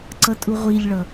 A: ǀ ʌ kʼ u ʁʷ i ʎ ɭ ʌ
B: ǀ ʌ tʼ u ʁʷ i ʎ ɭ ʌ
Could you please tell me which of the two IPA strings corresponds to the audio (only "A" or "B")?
B